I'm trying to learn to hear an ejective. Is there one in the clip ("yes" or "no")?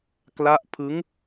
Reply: no